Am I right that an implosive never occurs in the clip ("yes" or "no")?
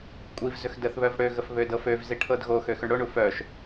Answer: yes